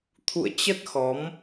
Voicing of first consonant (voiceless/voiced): voiceless